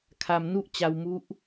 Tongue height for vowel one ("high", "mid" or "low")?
low